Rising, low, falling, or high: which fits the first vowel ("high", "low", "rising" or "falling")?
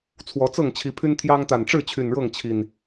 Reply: rising